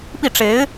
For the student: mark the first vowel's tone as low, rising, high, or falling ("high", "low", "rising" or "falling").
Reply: falling